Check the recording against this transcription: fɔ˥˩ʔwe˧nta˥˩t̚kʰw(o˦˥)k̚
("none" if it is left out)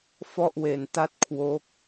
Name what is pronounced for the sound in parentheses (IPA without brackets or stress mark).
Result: o˦˥